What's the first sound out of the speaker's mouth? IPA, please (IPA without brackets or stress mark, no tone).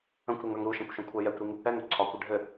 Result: ə̃